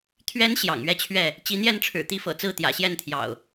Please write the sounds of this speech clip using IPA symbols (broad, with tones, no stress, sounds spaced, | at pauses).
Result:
t̪ʰ ɥ ɛ˨˦ n ɕ j ɑ̰˨˩ ŋ ɥ ɛ˥˨ t͡ɕʰ ɥ ɛ˥˨ | t͡ɕ i˨˦ n̪ j ɛ˥˨ n ʈ͡ʂʰ ɻ̩˨˩ t̪ i˥˨ f ɤ̰˨˩ t͡s ɹ̩˥˨ t̪ j ä̰˨˩ ɕ j ɛ˥˨ n t̪ʰ j ɑ̰˨˩ ʊ̯